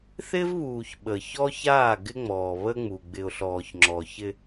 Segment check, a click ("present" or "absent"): present